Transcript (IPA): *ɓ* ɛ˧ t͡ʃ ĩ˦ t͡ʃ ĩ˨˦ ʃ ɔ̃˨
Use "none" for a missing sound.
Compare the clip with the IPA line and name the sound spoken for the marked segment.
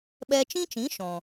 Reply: ɓ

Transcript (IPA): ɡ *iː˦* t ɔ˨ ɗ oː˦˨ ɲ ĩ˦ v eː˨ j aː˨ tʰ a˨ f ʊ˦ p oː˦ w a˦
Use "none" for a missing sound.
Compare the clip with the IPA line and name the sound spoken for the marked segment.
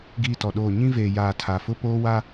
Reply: iː˦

